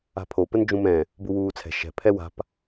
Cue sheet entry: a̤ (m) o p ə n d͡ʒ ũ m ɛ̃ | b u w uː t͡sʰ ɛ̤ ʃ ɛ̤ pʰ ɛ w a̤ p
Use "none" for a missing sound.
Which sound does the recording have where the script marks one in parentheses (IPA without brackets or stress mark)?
pʰ